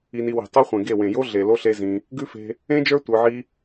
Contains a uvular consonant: yes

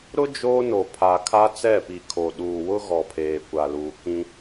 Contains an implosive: yes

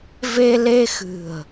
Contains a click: no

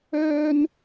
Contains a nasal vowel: no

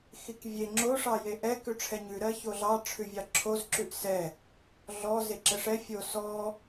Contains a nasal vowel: no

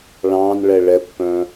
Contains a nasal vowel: yes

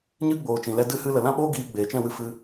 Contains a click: no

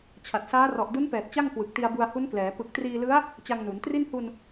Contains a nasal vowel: no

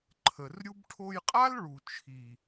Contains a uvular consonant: yes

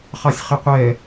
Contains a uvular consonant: yes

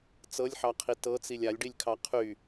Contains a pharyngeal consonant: yes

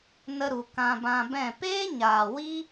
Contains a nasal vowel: yes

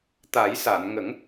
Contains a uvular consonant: no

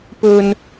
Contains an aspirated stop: no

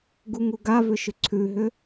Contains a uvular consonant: no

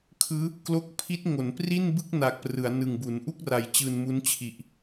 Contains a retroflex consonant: no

